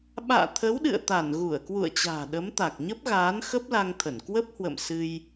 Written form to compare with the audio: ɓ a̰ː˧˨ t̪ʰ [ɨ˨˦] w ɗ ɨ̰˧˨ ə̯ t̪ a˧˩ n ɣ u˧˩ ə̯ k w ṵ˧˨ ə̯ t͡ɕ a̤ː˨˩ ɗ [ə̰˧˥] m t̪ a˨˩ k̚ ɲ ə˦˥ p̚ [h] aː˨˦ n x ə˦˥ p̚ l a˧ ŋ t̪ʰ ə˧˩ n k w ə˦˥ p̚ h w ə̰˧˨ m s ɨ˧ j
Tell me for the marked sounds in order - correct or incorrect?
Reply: incorrect: ə˨˦, incorrect: ə˨˦, incorrect: ɣ

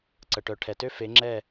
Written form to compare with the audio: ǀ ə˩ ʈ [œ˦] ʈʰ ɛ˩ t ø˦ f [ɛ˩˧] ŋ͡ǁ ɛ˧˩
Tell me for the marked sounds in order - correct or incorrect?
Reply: incorrect: œ˩, incorrect: e˩˧

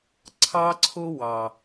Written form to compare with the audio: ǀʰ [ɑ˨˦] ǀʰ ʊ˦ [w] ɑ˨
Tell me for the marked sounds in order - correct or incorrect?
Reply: incorrect: ɑ˦, correct

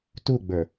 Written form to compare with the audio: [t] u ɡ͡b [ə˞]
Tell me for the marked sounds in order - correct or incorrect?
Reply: correct, correct

